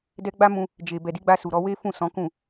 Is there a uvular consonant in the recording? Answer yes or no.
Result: no